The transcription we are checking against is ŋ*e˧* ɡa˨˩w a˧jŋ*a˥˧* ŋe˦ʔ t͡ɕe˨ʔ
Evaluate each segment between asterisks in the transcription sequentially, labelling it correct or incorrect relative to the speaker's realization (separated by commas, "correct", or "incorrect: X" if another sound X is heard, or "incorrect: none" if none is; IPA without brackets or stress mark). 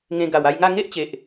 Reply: incorrect: ẽ˧, correct